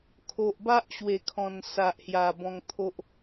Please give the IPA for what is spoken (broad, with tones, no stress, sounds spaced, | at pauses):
kʰ o˨ ʔ b a˦ ʔ ɕ w e˨˩ kʰ ɔ̃˨˩ n s a˨ ʔ h j a˨˩ b ɔ̃˧ ŋ t̪ʰ o˦ ʔ